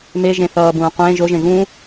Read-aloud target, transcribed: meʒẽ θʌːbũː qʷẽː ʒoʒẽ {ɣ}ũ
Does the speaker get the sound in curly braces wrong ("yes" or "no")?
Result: no